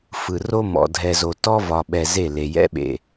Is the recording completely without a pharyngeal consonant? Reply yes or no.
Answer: yes